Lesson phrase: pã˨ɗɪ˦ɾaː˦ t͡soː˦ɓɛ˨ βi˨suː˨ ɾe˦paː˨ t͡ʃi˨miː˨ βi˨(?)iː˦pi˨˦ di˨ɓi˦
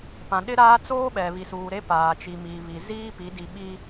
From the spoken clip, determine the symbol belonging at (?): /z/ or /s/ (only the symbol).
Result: z